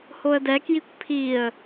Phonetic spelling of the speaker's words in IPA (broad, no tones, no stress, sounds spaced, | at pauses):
h o ə̯ d ɛ k j i kʷ pʰ i ə̯